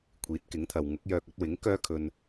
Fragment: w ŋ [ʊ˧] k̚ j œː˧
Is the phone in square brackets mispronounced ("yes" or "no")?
yes